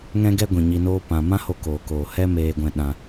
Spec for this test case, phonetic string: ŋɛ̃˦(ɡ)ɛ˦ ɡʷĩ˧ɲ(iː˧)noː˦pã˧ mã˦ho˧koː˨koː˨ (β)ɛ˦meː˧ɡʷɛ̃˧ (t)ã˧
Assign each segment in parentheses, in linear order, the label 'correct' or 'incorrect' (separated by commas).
correct, incorrect, incorrect, incorrect